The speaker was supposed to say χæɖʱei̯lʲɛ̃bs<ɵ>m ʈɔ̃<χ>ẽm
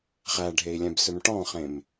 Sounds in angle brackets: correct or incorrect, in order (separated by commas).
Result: correct, correct